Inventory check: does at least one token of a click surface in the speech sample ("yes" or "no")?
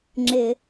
yes